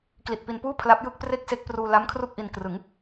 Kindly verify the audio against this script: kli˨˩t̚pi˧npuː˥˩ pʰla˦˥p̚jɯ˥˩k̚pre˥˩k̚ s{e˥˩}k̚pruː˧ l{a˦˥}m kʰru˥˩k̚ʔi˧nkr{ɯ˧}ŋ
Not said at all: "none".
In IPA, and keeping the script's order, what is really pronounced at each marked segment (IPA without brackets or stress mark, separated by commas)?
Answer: e˦˥, a˦˥, ɯ˩˦